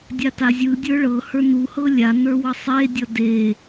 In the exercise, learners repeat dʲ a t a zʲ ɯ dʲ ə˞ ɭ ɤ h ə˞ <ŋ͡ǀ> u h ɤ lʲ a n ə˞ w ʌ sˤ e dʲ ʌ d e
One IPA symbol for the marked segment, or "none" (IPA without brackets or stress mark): n